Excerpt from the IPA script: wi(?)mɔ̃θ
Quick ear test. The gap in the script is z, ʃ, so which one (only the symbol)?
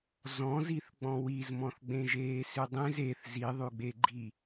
z